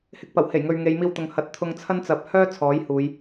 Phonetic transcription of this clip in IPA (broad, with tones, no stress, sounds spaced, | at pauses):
h ɪ˧ k̚ p ɐ˨˩ w h e˨˩ j ŋ ɵ˨ ɥ ŋ e˨˧ j m iː˧ w t̪ ʊ˨ ŋ h ɐ˨˥ t̚ t̪ʰ ʊ˧ ŋ t͡sʰ ɐ˥ n t͡s ɐ˨ p̚ h œː˥ t͡sʰ ɔː˨˥ j h uː˨˧ j